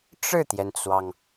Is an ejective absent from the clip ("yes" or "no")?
yes